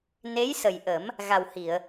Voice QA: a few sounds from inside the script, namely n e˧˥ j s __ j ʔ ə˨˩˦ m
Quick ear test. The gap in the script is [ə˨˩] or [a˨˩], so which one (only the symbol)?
ə˨˩